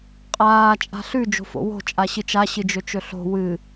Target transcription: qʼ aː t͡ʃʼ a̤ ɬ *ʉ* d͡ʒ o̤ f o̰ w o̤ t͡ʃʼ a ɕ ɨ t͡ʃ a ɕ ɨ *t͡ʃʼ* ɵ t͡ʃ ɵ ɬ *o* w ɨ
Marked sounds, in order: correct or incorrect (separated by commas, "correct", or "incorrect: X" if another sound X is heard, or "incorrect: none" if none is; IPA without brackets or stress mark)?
correct, incorrect: d͡ʒ, incorrect: o̤